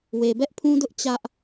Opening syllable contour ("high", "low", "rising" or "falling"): low